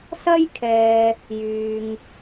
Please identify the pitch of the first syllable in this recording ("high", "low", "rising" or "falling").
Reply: high